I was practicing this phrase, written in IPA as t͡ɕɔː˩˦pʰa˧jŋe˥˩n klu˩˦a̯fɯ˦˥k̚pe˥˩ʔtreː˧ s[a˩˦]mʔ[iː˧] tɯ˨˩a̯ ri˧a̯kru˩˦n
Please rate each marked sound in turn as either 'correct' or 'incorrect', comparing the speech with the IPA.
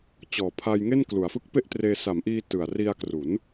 correct, correct

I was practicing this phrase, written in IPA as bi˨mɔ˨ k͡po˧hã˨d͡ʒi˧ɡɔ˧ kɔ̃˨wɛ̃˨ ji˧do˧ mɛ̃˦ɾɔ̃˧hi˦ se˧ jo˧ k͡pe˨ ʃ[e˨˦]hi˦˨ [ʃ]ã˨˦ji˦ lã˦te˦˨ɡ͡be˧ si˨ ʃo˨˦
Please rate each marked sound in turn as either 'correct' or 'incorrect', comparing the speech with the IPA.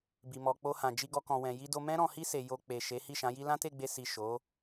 correct, correct

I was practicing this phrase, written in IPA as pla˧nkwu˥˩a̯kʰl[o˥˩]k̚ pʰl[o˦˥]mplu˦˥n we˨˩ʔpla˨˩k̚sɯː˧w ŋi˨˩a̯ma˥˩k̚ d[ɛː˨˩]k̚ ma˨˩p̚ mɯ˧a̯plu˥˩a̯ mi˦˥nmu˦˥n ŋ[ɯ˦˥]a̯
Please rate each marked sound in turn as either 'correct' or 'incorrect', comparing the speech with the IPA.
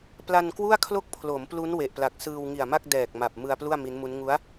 correct, incorrect, correct, incorrect

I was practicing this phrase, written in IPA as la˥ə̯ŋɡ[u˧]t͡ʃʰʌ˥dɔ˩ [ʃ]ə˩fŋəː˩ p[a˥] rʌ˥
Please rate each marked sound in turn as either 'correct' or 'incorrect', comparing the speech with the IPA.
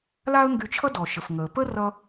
incorrect, correct, incorrect

